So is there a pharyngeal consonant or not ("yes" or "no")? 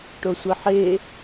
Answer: yes